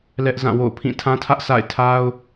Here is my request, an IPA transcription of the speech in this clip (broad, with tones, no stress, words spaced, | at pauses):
lɛ˦ʔ zã˦˨ wo̰˦˨ʊ̯pʰĩ˦˨ tʰã˦tʰä˦ʔ sa̰˦˨ɪ̯tʰa˦ʊ̯